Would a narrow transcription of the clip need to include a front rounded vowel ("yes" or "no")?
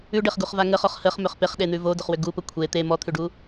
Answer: yes